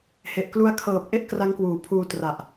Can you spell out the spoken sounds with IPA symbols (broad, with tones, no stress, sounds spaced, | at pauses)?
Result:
h e˨˩ ʔ k l u˦˥ a̯ kʰ ɤː˨˩ p̚ ʔ e˥˩ ʔ k r a˦˥ ŋ k w uː˨˩ pʰ uː˧ t r a˨˩ ʔ